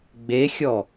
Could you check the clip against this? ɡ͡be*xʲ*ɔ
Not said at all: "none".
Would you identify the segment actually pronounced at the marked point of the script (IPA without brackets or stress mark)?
xʲ